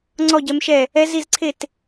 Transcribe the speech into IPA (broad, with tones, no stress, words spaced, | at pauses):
ŋ͡ǀɔ˥˨ɟɛ˧˥mʃɛ˥˨ | ɛ˧˥zi˥˨zǀʰe˥˨t